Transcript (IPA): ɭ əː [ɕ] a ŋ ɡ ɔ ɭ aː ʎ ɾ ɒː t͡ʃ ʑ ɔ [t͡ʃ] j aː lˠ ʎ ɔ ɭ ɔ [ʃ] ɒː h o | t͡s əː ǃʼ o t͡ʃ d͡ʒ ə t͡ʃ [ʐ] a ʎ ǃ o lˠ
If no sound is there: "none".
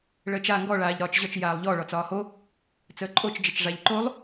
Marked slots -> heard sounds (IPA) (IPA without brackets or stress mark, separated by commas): t͡ʃ, t͡ʃ, t͡s, ʐ